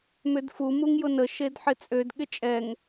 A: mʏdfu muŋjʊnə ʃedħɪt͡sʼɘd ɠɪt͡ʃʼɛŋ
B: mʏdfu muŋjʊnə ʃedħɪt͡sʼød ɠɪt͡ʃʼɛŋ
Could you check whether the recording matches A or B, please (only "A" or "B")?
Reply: B